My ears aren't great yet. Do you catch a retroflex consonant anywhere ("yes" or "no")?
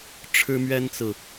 yes